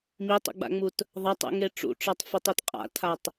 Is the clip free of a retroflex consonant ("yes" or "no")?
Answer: no